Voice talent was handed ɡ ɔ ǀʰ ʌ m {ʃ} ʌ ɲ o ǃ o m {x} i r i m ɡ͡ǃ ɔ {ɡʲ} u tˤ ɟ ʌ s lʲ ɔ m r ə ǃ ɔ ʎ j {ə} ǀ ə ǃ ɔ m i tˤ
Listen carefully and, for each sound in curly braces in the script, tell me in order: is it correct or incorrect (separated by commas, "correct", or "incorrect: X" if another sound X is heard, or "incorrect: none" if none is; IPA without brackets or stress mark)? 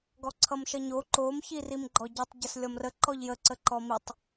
correct, incorrect: ç, incorrect: ɟ, correct